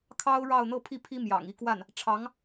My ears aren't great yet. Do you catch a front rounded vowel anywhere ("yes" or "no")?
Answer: no